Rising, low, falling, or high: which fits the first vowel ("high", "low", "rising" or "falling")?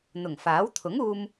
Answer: low